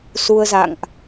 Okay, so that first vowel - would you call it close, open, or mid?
close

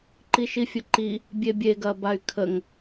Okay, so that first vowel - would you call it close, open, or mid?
close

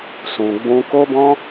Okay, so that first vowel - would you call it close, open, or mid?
close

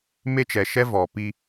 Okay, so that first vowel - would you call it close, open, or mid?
mid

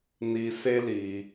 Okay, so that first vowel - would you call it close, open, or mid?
close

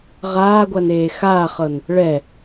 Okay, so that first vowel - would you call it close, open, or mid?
open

